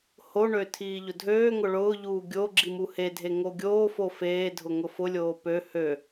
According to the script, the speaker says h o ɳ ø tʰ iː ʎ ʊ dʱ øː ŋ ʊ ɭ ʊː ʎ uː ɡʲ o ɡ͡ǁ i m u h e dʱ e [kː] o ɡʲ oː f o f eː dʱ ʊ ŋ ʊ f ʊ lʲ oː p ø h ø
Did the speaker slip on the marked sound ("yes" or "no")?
yes